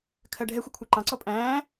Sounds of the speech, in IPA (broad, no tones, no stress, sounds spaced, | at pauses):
kʰ ɜ ɖʱ ɛ xʷ ɪ kʷʰ æ ǃ ɑ̃ ǀ ɔ pʼ æ̃ː